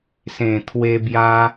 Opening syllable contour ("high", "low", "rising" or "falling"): low